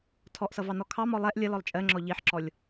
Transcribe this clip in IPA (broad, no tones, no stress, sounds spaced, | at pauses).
tʰ ɔ ʔ s ʌ v ɑ n ɔ kʰ ɑ m ɔ lˠ ɛ ʔ lʲ ʌ l ɔ lˠ t͡ʃʼ ɜ ŋ͡ǁ ɔ ʎ i ħ ǁ ɔ lʲ